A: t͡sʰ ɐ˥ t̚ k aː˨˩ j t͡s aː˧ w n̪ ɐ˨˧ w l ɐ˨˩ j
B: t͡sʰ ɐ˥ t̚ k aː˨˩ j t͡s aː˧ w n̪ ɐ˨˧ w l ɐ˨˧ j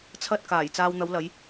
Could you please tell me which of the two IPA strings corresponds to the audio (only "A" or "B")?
B